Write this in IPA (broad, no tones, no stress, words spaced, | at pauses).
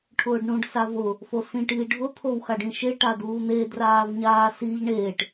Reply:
ʈʰʊːɖɳũɖ savʊ | fosĩʈ iːɖʱʊ t̪ʰowxaɖĩʃe ʈaduːn̪e draːvɲaːsiʎ ɳeːʈ